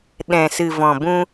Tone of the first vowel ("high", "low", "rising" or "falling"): low